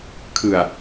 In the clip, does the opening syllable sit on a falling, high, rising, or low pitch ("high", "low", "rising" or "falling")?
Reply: low